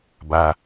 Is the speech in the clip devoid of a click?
yes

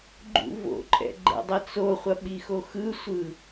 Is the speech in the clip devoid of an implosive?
no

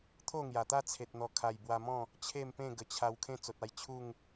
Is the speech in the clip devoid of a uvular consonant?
yes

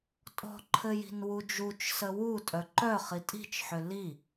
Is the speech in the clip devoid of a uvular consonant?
no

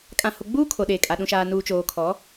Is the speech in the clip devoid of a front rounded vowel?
yes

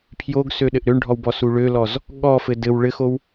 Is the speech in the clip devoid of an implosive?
no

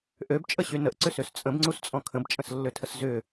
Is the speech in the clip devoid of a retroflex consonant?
yes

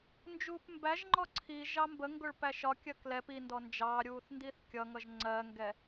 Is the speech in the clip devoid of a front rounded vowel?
yes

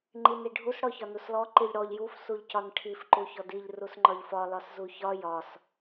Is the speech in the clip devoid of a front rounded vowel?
yes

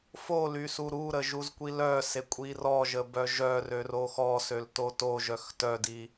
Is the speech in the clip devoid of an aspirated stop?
yes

